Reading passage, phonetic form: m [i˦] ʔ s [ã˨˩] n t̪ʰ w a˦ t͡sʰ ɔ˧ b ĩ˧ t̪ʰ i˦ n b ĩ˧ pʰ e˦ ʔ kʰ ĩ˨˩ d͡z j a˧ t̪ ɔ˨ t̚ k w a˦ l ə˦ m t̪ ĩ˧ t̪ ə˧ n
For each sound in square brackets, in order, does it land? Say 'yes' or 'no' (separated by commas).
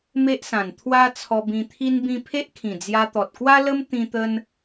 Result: no, yes